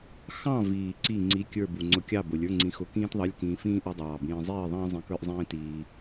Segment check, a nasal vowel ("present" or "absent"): present